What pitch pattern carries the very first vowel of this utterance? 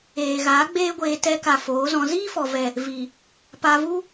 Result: low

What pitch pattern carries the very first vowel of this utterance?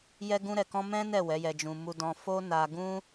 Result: high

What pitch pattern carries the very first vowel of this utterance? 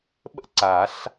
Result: high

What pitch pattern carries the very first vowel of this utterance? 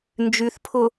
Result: low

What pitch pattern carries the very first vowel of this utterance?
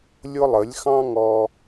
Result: high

